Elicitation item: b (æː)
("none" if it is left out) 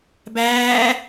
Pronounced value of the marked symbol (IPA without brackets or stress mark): æː